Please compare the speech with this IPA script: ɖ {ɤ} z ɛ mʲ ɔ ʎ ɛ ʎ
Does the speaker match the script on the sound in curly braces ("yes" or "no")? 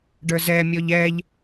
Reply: no